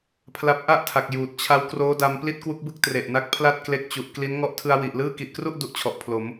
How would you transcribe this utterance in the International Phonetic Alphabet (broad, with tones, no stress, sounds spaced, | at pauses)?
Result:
pʰ l a˦˥ p̚ ʔ a˥˩ ʔ tʰ a˨˩ k̚ j uː˨˩ t̚ t͡ɕʰ a˦˥ w k r oː˦˥ d a˧ m p l i˥˩ t̚ k w u˦˥ k̚ b ɯ˥˩ k̚ t r e˨˩ ʔ n a˦˥ k̚ pʰ l a˥˩ t̚ k l e˦˥ k̚ t͡ɕ u˨˩ ʔ k l i˦˥ n ŋ ɔ˦˥ ʔ tʰ ɯ˧ a̯ w i˨˩ ʔ l ɯː˥˩ k i˨˩ ʔ k r u˥˩ ʔ d u˦˥ ʔ t͡ɕʰ ɔ˨˩ ʔ pʰ l o˩˦ m